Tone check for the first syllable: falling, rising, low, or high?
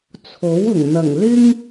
rising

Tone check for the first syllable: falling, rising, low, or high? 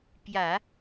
low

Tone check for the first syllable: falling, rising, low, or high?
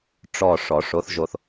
low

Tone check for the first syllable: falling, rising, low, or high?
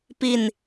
falling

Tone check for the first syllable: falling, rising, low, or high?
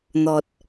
low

